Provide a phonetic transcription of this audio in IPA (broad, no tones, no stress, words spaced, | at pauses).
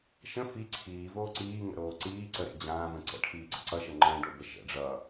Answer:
ʃə̃ fi ǀʰiːvoː ǀiːŋə̰ɾoː ǀiː ǀəɾḛ d͡ʑãːvə̃ ǀə̰ʈʰiːɡ͡ǀə ǀʌʃə ŋ͡ǃə̃ːɖobə ʃə̰ ɖ͡ʐʌ